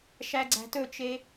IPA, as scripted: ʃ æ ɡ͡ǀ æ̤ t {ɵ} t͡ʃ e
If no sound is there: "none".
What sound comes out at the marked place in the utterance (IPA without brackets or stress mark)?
ɵ